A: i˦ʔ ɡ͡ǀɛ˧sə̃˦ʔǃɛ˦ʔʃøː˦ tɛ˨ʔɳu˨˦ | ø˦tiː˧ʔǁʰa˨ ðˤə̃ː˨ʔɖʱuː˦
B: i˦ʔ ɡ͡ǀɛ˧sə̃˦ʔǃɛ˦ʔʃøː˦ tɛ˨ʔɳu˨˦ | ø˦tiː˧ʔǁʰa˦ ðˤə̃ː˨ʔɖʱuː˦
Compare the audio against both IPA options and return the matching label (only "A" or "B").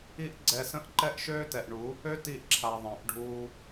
A